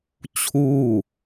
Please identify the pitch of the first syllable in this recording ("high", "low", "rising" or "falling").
falling